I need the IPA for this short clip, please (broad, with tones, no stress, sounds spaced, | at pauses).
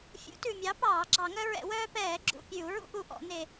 fʲ ṵ˨˥ t ʉ˨˩ mʲ ɑ˨˥ p ɑː˧˩˧ ɡ͡ǁ ɑ˧˩˧ ŋ œ˦ ɹ ɛ̰˧˩˧ w œː˦ p ɛː˧˩˧ ɡ͡ǁ ṵ˨˩ pʲ ʉ˧˩˧ u̯ ɹ ṵ˦ ʔ u˨˩ ʔ ɔ̰˧˩˧ n e˨˩